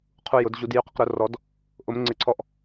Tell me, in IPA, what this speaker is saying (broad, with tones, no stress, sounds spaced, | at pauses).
qʰ u˧ j ʊ˨˩˦ d ʑ u˨˩˦ d j y˨˩˦ q ə˧ q ɾ ʊ˨˩˦ r ɔ˨˩˦ d | ʔ ʊ˨˩˦ m ŋ͡ǀ ɪ˨˩˦ ǀʰ ɔ˧ ʔ